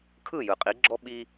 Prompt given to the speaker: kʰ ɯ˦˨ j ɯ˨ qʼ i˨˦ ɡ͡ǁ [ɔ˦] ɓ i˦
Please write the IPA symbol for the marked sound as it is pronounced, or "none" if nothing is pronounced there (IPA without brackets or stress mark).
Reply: ɔ˦